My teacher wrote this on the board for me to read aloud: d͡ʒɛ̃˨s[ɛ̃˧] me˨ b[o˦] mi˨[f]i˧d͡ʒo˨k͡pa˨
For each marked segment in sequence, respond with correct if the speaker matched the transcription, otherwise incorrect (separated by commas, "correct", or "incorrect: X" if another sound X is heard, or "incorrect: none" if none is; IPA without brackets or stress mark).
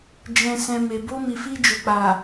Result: incorrect: ɛ̃˨, incorrect: o˧, correct